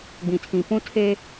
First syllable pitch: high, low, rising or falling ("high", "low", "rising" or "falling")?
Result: low